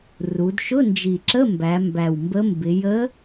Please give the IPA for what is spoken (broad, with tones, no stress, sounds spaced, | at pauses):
r u˩˧ d ʃ ʊ˧˥˧ n d͡ʒ i˨˩ ǁ ə˧˥˧ m b æ˩˧ m b æ˨˩ w m b ə˧˥ m b ɪ˩˧ j ə˧˥